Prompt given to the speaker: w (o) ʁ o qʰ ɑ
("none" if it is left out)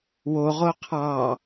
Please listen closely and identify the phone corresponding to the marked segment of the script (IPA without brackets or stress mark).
o